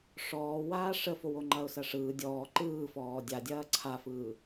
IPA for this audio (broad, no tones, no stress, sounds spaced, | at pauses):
ʂ ɔː w aː ʂ ə f o w o ŋ͡ǃ ɐ ʊ̯ s ɐ ʂ ɯː dʲ ɔː ǃ ɯː f ɔː dʲ a dʲ ɐː ǀʰ a f ɯː